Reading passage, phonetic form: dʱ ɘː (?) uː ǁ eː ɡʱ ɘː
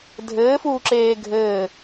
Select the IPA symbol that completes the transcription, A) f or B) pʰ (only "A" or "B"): A